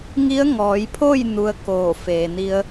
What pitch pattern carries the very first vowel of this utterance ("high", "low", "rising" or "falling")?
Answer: rising